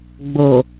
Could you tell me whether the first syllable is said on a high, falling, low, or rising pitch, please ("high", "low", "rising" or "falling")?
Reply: low